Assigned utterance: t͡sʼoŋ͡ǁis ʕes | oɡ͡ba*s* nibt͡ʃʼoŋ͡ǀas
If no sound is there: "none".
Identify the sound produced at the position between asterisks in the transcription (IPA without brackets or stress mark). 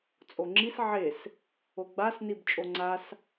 s